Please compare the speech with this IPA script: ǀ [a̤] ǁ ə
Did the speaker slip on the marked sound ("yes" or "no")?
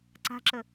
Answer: no